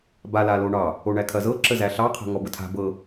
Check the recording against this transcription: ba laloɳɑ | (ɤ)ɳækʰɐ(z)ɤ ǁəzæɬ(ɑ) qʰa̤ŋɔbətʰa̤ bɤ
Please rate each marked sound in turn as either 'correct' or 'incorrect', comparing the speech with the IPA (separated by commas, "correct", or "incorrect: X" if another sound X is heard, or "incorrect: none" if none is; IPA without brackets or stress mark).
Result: incorrect: o, correct, correct